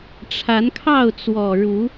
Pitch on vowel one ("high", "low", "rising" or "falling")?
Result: rising